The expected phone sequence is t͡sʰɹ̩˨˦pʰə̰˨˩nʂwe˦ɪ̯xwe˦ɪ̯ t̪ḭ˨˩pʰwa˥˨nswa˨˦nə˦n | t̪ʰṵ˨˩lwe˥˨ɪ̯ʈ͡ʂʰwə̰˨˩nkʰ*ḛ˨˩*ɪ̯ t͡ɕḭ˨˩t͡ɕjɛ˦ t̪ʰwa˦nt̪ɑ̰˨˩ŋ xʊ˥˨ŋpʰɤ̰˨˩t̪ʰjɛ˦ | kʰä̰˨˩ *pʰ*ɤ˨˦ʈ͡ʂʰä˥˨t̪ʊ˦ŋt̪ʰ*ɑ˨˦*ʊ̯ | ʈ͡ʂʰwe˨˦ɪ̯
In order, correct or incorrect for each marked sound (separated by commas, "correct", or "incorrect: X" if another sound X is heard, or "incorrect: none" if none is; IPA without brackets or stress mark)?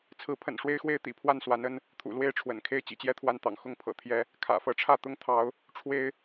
incorrect: e˥˨, incorrect: f, correct